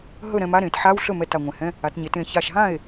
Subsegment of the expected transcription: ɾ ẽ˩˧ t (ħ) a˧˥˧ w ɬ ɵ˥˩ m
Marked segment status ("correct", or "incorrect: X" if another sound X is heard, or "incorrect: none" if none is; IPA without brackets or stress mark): correct